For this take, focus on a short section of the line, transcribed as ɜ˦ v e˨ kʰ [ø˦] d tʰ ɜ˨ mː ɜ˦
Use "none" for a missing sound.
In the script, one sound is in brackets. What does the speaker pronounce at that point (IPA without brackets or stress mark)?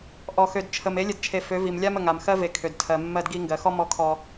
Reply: ø˨